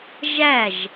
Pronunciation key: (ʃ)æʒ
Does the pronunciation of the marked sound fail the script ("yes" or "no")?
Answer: yes